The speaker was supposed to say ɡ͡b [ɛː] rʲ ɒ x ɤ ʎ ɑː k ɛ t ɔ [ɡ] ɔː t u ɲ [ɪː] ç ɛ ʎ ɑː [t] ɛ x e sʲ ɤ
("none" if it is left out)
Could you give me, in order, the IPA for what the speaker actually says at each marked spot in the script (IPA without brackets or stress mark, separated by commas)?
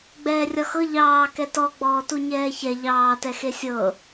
ɛː, ɡ͡b, ɛː, t